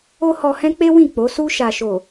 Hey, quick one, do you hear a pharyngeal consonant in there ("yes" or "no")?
no